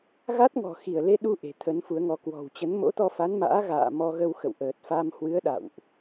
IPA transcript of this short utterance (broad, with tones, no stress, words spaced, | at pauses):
ɣa˦˥t̚ŋɔ̤˨˩ xi˧˩ə̯le˧ɗu˧ ʔe̤˨˩t̪ʰə˨˦nfu˨˦ə̯ŋɔ˨˦ kwɔ̤˨˩wt͡ɕə˨˦n mo̰˧˥t̪ɔ˧fa˨˦nma̰ː˧˥ ɣa̰ː˧˨ mɔ˧ɣə˧w xə̰˧˨wʔəː˨˩t̚fa˧m hwɨ˨˦ə̯ ɗa̰˧˨wʔ